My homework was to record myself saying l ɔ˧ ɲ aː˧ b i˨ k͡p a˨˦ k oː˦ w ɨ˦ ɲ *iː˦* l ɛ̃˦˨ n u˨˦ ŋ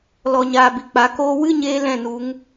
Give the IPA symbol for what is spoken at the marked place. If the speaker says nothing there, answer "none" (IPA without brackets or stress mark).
eː˦